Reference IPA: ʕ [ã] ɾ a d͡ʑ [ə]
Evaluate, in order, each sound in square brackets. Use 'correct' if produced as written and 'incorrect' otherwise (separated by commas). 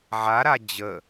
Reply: incorrect, correct